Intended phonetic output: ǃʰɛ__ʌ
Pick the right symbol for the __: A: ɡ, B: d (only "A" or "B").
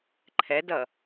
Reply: B